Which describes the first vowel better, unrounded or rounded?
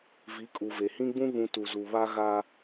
unrounded